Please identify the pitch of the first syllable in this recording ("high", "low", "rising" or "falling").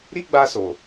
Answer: high